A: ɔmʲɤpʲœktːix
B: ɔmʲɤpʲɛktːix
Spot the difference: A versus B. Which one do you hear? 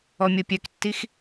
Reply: A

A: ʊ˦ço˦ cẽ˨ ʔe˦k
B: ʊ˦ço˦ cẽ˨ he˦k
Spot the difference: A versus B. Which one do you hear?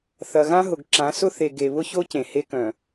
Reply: B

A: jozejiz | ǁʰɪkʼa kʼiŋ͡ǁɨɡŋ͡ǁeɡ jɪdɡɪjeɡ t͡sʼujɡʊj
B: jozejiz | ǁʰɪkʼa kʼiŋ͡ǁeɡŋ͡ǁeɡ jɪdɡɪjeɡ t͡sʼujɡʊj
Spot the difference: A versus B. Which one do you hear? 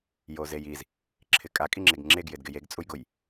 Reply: B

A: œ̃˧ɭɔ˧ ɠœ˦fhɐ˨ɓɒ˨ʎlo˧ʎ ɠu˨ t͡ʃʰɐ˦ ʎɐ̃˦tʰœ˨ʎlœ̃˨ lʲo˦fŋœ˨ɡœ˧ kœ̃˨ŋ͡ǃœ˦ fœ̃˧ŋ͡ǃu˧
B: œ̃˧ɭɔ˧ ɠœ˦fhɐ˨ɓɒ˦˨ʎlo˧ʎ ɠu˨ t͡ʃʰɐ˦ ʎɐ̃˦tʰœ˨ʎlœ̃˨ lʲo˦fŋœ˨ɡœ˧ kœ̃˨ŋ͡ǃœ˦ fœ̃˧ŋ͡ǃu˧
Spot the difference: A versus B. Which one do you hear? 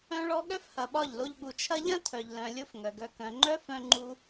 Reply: B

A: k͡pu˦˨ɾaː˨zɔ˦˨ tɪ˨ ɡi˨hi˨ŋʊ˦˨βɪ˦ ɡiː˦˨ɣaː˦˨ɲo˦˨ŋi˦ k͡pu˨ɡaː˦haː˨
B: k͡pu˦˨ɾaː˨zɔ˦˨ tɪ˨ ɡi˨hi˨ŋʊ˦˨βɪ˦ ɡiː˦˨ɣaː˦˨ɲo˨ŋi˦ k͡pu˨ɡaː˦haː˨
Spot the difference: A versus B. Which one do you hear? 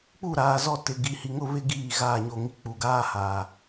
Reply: A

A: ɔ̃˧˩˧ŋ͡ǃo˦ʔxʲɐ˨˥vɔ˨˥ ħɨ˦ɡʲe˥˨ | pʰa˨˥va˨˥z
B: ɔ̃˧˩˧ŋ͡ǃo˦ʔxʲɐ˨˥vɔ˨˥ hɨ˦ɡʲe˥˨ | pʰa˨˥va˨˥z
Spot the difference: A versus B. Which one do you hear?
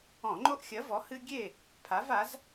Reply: B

